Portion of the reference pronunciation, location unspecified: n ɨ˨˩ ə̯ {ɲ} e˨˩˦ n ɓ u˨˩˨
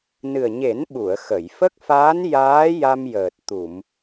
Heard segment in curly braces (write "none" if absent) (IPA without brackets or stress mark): ɲ